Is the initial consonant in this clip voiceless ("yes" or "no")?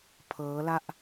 yes